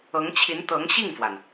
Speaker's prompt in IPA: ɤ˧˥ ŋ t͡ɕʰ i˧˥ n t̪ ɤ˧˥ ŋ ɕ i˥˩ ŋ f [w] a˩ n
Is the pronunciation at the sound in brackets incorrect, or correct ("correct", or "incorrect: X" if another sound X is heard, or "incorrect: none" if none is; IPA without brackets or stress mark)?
correct